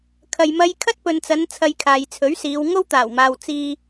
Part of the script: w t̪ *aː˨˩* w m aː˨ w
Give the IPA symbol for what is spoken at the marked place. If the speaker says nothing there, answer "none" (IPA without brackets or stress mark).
aː˨˩